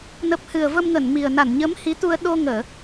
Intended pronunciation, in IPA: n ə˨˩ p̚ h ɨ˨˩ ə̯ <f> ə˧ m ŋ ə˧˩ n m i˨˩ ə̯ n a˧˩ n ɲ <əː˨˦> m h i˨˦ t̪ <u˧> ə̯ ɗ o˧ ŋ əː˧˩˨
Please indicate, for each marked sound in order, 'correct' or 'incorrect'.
incorrect: v, correct, correct

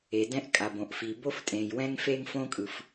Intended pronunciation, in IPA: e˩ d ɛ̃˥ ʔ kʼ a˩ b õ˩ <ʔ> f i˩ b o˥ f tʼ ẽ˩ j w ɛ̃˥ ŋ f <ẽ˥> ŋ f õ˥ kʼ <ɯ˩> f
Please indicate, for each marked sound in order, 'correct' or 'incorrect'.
correct, incorrect: e˥, correct

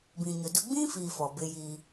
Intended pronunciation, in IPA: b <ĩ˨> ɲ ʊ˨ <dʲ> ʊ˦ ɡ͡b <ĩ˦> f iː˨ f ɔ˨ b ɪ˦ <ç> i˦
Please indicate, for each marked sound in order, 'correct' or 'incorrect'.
correct, incorrect: d, correct, incorrect: j

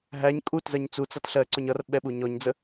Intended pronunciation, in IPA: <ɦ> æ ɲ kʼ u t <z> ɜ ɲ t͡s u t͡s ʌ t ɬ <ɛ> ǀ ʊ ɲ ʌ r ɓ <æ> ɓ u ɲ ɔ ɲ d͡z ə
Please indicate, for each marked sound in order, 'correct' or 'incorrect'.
correct, correct, incorrect: ɜ, incorrect: ɛ

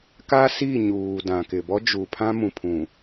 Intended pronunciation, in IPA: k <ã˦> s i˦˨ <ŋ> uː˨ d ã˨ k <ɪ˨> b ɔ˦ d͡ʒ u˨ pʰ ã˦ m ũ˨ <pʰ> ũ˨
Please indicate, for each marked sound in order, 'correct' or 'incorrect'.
incorrect: a˦, incorrect: ɲ, correct, correct

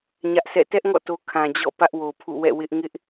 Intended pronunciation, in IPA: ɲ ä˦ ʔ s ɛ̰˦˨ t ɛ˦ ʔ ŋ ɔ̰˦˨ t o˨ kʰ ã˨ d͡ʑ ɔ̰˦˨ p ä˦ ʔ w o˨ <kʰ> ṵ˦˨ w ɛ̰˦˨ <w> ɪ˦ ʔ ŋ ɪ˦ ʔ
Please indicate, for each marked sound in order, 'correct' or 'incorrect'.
incorrect: pʰ, correct

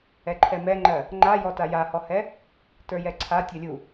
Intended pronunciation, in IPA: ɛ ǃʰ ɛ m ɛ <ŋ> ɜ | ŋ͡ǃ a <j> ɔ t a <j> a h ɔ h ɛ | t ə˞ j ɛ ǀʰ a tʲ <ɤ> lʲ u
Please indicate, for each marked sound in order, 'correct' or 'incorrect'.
incorrect: ŋ͡ǃ, correct, correct, correct

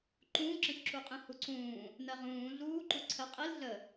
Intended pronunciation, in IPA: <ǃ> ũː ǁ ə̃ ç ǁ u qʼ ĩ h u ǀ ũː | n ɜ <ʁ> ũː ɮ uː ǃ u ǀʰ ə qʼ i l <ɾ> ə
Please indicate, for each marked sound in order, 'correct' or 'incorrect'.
correct, correct, incorrect: ɮ

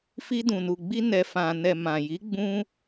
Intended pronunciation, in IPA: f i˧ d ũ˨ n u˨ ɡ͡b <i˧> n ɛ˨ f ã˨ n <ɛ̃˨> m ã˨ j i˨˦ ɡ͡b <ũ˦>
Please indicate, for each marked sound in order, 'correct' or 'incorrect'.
correct, incorrect: ɛ˨, correct

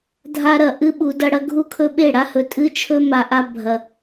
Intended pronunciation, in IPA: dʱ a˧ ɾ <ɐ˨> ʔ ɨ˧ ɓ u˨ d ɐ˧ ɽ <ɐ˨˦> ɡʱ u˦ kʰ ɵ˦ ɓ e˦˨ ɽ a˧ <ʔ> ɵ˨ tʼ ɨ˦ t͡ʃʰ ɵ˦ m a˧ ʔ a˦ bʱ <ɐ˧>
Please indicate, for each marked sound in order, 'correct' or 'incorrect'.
correct, incorrect: ɐ˧, incorrect: h, correct

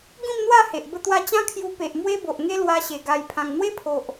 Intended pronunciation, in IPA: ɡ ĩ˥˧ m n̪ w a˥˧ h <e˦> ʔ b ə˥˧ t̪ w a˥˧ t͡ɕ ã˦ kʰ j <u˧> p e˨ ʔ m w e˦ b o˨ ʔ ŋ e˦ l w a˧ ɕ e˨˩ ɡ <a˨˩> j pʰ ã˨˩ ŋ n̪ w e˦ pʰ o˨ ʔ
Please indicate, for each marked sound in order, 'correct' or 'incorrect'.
incorrect: e˨, correct, correct

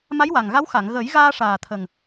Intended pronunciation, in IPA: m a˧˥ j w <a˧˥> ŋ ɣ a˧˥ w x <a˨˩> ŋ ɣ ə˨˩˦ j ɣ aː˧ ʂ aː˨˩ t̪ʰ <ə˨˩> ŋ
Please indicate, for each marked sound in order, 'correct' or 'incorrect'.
incorrect: a˨˩, incorrect: a˨˩˨, correct

